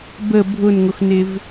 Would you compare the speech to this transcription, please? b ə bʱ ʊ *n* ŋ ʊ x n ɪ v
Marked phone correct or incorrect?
correct